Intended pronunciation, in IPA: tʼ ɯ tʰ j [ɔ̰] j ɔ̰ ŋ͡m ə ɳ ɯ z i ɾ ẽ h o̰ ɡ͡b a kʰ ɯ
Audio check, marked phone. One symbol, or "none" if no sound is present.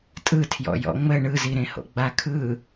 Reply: ɔ̰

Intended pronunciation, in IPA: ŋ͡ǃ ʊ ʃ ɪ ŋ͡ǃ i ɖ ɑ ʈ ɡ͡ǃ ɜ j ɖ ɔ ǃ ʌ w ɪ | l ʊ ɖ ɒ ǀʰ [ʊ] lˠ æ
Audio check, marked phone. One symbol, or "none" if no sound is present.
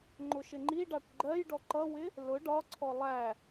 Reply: ɔ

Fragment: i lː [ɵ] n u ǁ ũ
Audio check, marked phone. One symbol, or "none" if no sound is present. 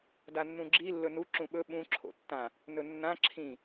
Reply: ɵ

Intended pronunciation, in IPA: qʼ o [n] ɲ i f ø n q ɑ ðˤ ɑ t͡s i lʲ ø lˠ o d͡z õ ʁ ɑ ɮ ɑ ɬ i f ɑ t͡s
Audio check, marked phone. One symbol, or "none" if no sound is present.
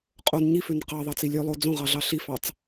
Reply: n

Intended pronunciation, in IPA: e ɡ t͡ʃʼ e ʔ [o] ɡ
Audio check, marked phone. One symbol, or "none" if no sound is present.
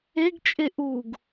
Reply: u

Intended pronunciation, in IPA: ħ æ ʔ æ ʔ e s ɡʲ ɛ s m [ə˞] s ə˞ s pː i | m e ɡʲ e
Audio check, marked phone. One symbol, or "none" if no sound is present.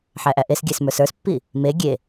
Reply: ə˞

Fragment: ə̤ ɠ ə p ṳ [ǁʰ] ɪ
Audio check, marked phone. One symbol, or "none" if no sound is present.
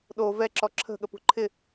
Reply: ǃʰ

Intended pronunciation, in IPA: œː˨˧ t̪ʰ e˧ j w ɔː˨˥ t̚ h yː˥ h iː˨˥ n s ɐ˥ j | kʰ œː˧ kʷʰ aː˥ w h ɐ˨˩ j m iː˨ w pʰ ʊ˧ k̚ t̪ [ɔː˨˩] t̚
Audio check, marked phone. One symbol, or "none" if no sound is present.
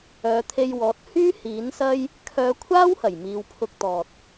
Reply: ɔː˨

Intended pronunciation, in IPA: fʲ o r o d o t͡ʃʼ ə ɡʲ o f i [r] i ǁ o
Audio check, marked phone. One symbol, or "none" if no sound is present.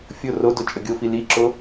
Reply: l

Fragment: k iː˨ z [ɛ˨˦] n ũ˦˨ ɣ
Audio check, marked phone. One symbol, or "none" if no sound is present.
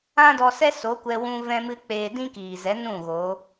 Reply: ɛ˨˦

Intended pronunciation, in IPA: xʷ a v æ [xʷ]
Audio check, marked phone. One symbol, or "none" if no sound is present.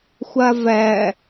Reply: none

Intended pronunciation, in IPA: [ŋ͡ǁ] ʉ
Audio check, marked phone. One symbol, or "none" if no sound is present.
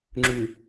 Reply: ŋ͡ǁ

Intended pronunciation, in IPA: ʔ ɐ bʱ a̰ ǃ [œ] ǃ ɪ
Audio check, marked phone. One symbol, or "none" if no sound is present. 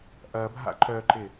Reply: œ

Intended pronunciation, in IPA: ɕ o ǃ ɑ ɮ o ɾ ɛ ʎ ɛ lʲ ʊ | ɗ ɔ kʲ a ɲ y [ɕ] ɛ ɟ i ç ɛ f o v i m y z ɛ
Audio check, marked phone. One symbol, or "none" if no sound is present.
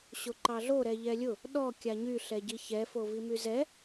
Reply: ɬ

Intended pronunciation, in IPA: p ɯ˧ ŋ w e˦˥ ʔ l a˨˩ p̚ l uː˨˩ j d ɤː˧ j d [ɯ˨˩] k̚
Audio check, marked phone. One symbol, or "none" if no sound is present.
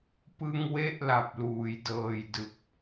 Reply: ɯ˦˥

